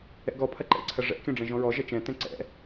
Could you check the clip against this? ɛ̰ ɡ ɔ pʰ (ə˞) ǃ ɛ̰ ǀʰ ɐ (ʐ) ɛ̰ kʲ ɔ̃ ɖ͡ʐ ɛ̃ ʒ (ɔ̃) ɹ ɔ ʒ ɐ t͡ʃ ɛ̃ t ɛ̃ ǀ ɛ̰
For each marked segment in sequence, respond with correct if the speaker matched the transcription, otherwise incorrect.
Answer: incorrect, correct, correct

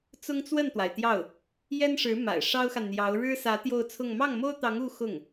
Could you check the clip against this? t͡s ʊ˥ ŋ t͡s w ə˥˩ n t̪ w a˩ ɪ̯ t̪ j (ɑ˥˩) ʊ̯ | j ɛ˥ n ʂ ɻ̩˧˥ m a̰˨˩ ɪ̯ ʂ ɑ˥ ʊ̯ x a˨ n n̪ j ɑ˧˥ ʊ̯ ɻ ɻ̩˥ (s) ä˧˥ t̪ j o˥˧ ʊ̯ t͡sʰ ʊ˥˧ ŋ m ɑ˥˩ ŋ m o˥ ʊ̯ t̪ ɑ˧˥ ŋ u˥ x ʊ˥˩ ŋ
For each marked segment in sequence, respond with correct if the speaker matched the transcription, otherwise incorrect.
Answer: correct, correct

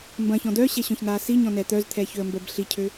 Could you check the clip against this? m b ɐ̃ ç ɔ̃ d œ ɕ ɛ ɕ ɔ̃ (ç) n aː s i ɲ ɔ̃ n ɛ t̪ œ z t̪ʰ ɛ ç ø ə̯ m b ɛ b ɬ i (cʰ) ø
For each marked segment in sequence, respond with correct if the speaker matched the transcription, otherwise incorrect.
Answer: correct, correct

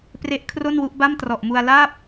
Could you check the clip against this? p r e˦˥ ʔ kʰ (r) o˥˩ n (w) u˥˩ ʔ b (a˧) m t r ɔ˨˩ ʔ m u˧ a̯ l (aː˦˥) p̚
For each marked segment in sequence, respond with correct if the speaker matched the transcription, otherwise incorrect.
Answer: correct, correct, incorrect, incorrect

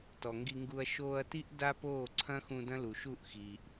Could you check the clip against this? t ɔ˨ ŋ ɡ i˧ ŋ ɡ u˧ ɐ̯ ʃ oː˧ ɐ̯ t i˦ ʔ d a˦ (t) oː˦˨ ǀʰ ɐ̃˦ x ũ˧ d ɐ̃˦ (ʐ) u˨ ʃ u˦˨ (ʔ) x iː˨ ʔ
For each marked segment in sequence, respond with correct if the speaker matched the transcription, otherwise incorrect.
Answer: incorrect, incorrect, correct

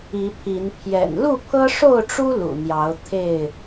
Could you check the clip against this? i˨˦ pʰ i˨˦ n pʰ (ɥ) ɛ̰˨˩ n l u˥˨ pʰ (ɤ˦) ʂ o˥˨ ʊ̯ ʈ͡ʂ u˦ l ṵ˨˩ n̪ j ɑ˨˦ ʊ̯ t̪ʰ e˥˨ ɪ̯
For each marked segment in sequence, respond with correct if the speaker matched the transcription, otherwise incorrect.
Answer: incorrect, correct

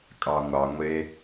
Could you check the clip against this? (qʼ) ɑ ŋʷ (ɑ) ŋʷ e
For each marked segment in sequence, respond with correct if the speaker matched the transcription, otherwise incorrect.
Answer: incorrect, correct

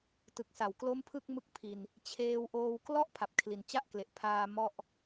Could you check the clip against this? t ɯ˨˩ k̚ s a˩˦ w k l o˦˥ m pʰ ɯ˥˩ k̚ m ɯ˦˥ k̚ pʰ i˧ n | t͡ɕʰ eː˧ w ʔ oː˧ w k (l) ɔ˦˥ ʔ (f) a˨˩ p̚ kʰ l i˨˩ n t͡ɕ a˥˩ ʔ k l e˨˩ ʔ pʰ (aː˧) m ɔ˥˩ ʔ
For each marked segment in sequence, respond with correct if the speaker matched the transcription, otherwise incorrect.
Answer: correct, incorrect, correct

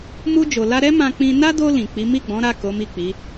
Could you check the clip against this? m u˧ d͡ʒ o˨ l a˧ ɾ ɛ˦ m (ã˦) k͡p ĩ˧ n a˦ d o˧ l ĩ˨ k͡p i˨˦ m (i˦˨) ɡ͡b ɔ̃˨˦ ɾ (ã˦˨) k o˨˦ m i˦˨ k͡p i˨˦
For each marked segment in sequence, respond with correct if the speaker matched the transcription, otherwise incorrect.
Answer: incorrect, correct, incorrect

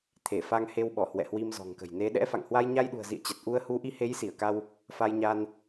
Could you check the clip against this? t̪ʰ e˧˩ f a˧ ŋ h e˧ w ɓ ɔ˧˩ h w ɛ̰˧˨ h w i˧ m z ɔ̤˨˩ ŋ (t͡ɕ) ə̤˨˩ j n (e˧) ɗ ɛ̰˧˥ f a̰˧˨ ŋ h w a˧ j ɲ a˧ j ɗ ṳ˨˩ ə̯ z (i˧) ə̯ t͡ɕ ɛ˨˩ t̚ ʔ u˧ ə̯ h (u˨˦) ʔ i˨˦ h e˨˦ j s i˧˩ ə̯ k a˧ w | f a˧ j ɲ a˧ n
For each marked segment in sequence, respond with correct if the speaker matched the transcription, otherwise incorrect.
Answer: incorrect, incorrect, incorrect, correct

